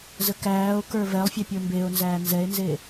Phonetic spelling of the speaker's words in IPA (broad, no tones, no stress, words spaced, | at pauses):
zəkæːo̯kə˞ vɛlˠfʲe pʲə˞mbeo̯nzæː nzɛe̯nze